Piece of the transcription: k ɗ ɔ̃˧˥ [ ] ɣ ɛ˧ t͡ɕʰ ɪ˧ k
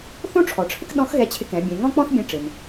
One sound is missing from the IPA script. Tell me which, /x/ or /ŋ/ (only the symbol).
x